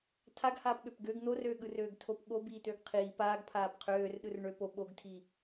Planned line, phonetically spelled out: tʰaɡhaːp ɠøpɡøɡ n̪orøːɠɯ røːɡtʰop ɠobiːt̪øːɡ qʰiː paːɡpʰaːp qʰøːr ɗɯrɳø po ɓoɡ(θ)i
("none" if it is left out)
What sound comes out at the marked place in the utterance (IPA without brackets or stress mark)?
tʰ